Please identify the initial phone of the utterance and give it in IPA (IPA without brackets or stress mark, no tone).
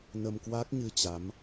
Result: n